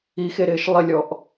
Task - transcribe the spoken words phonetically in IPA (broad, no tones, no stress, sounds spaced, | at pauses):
i x e ɾ ɪː ʃ lˠ ɪ lʲ ɔ ʔ